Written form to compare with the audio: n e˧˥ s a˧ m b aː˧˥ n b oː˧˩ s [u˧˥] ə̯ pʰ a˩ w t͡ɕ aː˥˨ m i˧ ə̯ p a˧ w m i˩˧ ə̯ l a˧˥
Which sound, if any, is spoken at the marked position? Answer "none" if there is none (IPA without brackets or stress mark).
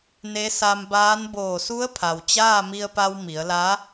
u˧˥